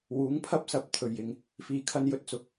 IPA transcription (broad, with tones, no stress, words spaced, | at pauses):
wuː˨˥ŋpʰɐ˥p̚sɐ˨p̚ t̪ʰɵ˨˩ɥjɪ˨˩ŋ | fiː˧kʰɐ˥n jɵ˥t̚t͡sʊ˧k̚